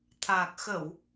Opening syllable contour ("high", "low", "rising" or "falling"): low